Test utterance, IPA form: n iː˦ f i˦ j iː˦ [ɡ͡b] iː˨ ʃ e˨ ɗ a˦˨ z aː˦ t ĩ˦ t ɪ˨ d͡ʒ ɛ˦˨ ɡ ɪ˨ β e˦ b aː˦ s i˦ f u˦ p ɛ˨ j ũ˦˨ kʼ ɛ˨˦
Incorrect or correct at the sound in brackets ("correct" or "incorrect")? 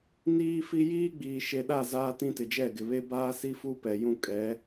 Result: correct